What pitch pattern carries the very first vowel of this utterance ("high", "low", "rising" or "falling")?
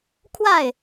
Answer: falling